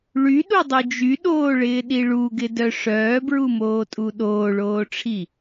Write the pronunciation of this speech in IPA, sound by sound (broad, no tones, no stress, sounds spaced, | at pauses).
ɭ y ɗ u dˤ u d͡ʒ y ɗ oː ɭ ɪː ɗ i ɭ u ɡ ɪ d œ ʂ œː b ɹ u m oː tʼ u ɗ oː ɭ oː ʈ͡ʂʰ i